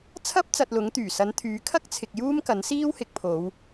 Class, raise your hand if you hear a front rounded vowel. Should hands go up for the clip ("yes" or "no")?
yes